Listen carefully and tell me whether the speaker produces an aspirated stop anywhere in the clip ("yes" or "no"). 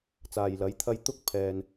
yes